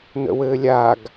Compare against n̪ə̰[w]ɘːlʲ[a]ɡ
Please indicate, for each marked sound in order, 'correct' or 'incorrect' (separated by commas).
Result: correct, correct